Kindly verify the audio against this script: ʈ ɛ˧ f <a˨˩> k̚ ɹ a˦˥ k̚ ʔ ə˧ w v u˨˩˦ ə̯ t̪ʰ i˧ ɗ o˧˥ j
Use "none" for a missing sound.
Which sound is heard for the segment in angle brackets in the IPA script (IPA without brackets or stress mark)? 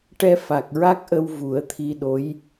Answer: a˨˩